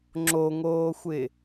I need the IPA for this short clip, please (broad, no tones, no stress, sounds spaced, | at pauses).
ŋ͡ǁ o ŋ oː xʷ ɪ